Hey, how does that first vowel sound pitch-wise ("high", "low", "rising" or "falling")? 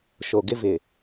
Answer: low